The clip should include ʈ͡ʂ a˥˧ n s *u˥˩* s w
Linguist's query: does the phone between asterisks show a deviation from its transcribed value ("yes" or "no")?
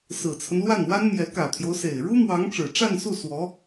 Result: no